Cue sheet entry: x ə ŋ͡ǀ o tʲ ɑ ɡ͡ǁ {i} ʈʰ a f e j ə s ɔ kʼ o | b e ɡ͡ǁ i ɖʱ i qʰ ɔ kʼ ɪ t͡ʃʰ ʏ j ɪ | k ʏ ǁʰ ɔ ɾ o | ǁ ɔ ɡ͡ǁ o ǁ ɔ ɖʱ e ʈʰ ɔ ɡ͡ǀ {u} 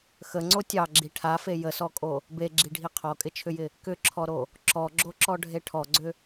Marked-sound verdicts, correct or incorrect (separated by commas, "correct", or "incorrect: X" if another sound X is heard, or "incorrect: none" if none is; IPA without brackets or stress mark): correct, incorrect: ʏ